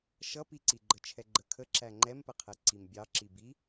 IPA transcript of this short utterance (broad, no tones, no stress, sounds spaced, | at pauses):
ʃ ʌ p i ǀ i ɡ͡ǃ ə t͡ʃʰ ɛ ɡ͡ǃ ə kʰ ə ǁ æ ŋ͡ǃ ɛ m p ə qʰ ɛ ǀ i m bʲ ɑ ǁ i b i